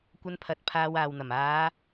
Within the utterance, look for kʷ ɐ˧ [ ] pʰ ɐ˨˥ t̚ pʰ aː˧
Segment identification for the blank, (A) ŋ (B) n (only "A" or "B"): B